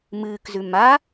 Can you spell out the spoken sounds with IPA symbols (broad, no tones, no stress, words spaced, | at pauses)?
mɨːkzʉ ma